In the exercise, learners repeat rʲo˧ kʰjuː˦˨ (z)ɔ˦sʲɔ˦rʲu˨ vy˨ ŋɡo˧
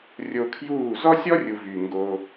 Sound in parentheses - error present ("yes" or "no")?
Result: no